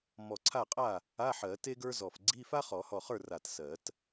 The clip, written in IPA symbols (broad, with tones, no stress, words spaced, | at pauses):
mɔ˧˩ǀʰa˥˩qʼa˥˩ | a˧˥˧ħɜ˨˩˦ te˥ɡə˞˥zɔ˧˩f ɡ͡ǀi˧˥˧fa˥ χɔ˨˩˦hɔ˧˩χə˞˥˩ ra˧˩tsɜ˨˩˦t